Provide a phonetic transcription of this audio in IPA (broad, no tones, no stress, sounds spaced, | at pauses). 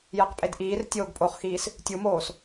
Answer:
j ɛ q pʼ e d ʔ iː r tʲ oː ɡ pʼ o χ x iː s | tʲ u m oː s